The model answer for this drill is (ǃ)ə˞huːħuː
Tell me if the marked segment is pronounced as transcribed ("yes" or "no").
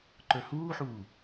yes